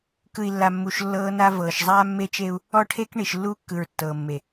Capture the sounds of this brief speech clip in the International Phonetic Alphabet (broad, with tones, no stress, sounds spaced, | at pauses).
k ɯ˨ i̯ lː a˨ mː u˨ ʃ lː ɤː˦ n a˦ v ɤː˨ ʃ zˤ aː˦ mː e˦ t͡ʃ e˦ u̯ | ɔ˦ ʈʰ e˦ k ɳ i˨ ʃ lː uː˦ kː ɯ˨ ɹ tː ɤː˨ mː e˨